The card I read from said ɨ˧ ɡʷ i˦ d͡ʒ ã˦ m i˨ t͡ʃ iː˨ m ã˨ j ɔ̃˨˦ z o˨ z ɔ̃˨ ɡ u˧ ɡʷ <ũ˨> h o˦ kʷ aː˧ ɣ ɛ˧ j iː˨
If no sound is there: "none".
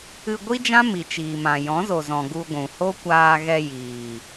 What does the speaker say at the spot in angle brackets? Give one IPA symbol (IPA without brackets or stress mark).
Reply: ũ˨